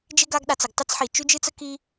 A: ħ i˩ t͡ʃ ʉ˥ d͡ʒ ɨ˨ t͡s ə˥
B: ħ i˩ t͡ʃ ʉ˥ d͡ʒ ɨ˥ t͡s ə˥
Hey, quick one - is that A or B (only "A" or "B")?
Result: B